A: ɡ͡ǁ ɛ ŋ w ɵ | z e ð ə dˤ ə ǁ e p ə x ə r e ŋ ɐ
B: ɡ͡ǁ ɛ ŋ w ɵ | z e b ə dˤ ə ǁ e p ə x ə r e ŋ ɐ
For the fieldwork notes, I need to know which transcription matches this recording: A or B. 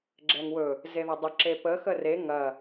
A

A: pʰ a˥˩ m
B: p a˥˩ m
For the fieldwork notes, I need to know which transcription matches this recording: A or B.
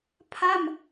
A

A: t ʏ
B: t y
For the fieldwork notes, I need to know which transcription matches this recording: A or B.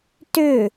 A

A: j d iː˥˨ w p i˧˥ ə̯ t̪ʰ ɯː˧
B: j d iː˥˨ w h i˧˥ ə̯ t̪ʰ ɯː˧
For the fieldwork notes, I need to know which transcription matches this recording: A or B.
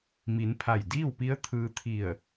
A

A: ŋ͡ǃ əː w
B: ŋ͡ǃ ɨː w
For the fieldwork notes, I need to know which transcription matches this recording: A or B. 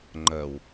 A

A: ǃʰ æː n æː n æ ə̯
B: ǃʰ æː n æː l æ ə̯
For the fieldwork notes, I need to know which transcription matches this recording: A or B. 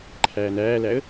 B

